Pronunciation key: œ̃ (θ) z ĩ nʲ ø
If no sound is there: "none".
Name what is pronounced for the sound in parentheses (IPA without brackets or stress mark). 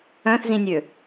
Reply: θ